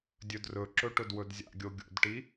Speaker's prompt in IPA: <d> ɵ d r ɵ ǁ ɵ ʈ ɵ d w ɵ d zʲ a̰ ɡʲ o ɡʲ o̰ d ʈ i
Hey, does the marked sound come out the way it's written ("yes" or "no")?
no